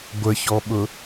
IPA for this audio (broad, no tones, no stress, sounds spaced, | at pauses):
ɡʷ ə ç ɔ ɓ ʊ